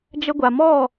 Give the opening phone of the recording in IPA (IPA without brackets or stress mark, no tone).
d͡ʒ